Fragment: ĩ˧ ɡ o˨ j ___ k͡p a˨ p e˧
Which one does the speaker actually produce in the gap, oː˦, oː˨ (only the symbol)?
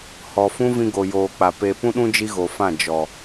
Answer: oː˨